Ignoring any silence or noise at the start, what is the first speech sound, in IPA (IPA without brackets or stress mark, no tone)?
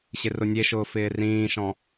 ɕ